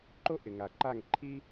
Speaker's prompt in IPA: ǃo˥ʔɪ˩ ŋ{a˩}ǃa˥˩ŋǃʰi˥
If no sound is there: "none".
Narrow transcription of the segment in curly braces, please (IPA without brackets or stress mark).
a˩